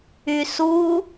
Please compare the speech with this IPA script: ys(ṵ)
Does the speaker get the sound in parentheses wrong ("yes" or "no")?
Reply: yes